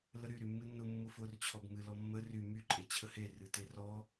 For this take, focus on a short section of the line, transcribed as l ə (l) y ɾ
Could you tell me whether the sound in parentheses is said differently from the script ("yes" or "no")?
yes